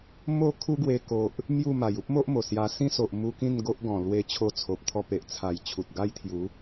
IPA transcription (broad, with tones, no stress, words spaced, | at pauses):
mo˥˧ kʰu˦ ɡwe˧ko˨ʔ | mju˥˧ma˨˩j u˦p̚mo˦ʔ mo˨˩ sja˧ sĩ˦so˨ʔmu˧ kĩ˥˧nɡo˦ʔɡɔ̃˨˩ lwe˧t͡ɕʰo˧t͡sʰo˨p̚ t̪ʰɔ˧pe˨ʔ t͡sʰa˨˩j t͡ɕʰu˨t̚ɡa˦jt̪ʰju˨˦